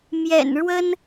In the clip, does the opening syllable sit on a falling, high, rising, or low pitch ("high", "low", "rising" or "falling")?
low